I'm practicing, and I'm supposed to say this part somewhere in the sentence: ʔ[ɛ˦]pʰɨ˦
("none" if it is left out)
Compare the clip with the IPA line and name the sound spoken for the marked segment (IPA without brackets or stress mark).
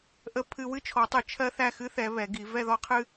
ə˦